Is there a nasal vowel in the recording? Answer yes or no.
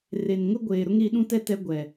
yes